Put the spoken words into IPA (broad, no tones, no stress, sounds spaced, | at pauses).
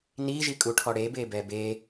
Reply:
n i ʒ i kʼ u ʈʰ ɔ ɽ e b e b ɛ b e